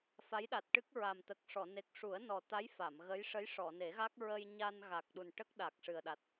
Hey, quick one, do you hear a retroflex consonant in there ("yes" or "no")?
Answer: yes